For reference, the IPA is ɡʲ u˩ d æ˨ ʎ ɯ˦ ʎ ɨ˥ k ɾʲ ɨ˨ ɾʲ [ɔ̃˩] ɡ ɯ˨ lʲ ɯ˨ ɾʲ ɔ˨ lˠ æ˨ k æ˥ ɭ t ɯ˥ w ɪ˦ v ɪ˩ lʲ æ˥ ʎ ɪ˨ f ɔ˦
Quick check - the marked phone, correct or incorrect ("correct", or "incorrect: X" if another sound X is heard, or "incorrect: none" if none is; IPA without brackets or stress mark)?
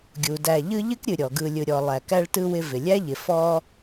incorrect: ɔ˩